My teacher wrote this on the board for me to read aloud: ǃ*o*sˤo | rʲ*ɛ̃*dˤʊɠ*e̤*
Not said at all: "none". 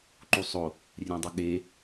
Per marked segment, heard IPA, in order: u, ɛ̃, e

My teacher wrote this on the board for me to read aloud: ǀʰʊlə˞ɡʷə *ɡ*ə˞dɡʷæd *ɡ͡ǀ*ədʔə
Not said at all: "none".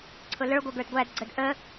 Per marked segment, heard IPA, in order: ɡ, ɡ͡ǀ

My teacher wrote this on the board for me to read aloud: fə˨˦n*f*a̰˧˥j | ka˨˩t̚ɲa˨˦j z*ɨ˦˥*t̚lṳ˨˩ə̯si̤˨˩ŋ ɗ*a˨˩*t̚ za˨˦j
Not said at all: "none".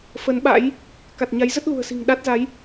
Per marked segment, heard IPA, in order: ɓ, ə˦˥, a˦˥

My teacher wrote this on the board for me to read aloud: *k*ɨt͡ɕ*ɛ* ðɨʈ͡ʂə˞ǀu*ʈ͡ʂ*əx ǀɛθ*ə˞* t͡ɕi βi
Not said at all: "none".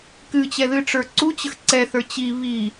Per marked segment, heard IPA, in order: k, ɛ, t͡ɕ, ə˞

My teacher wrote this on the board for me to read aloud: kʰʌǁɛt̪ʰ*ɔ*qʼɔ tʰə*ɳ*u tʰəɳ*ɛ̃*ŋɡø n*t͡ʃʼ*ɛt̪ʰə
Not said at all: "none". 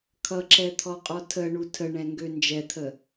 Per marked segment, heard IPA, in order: ɔ, ɳ, ɛ̃, d͡ʒ

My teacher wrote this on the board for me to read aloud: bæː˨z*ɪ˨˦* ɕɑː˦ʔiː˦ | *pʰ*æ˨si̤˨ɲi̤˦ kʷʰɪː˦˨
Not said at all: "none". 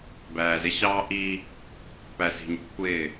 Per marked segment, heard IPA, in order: ɪ˦, p

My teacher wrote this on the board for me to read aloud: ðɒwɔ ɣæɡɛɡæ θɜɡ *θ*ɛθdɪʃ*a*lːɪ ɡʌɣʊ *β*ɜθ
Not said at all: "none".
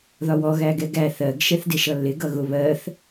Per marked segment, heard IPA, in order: ʃ, ʌ, β

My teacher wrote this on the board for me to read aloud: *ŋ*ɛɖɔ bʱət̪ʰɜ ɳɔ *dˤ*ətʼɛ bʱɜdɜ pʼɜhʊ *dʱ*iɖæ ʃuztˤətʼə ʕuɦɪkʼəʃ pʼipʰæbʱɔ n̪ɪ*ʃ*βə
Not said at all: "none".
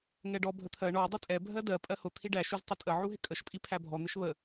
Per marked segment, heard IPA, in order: ŋ, dˤ, t̪ʰ, ʃ

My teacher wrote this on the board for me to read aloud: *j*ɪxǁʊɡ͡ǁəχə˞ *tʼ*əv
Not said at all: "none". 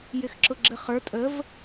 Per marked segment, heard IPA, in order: j, tʼ

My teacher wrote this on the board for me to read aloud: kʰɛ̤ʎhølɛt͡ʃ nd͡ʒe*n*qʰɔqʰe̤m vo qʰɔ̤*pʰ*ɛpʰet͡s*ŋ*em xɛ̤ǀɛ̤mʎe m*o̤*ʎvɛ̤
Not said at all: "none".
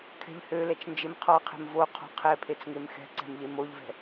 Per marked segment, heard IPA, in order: m, qʰ, ŋ, o

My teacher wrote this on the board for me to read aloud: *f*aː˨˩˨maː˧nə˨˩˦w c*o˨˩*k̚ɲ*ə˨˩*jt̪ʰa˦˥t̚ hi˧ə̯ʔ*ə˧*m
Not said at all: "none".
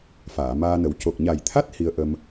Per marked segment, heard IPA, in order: f, o˨˩, a˨˩, ə˧

